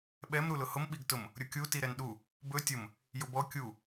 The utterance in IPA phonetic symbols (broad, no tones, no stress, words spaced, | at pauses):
ɓɛm ɾulʊhʊm ɓiɡtʊm | ɾʲʊkʲu tiɾɛnɗu | bɵ tʲʊm | jʊbɔ kʲu